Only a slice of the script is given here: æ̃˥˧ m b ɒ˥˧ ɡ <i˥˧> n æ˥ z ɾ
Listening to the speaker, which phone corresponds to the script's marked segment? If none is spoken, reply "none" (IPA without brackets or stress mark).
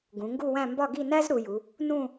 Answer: i˥˧